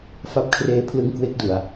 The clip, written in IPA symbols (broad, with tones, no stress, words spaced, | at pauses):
fa˦˥p̚kʰreː˦˥pʰlɯ˦˥ŋ kwe˦˥k̚du˧a̯